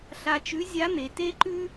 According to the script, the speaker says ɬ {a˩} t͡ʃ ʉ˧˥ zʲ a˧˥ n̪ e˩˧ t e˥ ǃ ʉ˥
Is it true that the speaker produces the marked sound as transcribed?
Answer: no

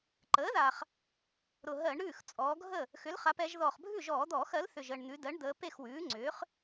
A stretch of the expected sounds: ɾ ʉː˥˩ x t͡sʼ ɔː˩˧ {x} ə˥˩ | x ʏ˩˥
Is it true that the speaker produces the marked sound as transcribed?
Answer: no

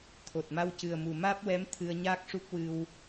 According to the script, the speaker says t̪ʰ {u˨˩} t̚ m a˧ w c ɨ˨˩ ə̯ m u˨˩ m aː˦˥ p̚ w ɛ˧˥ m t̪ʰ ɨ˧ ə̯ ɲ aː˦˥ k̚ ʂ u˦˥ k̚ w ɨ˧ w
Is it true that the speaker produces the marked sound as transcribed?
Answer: no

